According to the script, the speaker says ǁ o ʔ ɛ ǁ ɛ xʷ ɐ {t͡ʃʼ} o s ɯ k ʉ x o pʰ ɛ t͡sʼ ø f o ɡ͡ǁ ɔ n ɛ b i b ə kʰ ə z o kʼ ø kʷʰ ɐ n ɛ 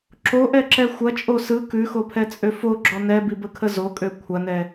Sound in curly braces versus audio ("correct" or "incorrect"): correct